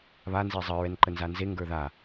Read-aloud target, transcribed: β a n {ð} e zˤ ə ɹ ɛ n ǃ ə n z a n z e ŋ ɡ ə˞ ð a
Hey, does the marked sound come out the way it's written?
no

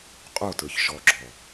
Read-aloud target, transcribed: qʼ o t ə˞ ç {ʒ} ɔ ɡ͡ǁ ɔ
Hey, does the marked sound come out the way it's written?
no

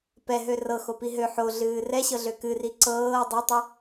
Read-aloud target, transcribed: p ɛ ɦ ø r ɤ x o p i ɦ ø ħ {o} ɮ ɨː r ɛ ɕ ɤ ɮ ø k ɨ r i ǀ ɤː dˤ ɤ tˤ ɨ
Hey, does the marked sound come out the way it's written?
yes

